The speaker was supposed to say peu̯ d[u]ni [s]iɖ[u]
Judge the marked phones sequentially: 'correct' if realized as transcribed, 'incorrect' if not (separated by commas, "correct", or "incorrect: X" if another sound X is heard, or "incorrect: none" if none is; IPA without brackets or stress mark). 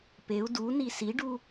correct, correct, correct